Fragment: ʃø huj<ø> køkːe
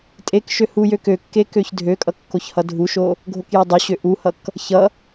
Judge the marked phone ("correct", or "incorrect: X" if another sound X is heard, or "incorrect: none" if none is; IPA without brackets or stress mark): correct